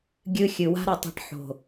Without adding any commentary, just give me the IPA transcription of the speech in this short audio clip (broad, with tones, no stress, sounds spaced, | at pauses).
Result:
ɡʲ ɨ˧ xʲ ɨ˨ w a̤˦ ɾ ɐ˧ tˤ a̤˧ ʈ ħ o̤˨